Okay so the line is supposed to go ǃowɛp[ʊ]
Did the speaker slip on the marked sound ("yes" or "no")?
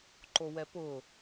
no